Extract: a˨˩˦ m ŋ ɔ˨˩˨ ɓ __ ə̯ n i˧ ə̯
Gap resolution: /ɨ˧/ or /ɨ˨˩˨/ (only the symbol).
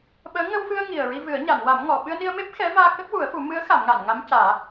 ɨ˧